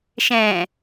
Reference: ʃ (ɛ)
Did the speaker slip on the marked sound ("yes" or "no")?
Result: yes